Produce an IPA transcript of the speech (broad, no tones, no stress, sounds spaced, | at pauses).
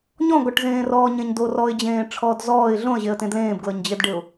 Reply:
ɲ ɔ̃ ɡ ɔ ʈ z ẽː r ɔː ɲ ẽ ɲ d o r ɔ ɪ̯ d͡ʑ ẽː ʈ͡ʂʰ ɔː d z ɔː ɪ̯ ɮ õ ə̯ ʑ e ə̯ t ẽ d l ẽː b ɡ l ɤ ɲ d͡ʑ e d ɖ e ʊ̯